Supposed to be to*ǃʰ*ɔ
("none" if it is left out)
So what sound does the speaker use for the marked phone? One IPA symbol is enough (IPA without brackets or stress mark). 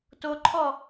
ǃʰ